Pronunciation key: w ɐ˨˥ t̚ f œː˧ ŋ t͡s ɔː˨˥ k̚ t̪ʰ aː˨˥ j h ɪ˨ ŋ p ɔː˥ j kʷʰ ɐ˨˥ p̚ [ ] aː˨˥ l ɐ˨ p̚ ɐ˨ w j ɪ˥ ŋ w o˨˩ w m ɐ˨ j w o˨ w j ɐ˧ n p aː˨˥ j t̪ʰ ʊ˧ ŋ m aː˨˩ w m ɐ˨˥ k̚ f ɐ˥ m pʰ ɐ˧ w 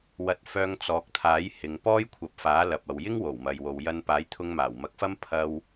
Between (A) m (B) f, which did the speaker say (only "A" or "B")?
B